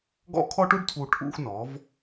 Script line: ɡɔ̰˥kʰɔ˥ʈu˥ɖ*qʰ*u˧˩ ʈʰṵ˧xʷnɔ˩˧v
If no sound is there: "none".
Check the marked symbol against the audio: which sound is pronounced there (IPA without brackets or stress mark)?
tʰ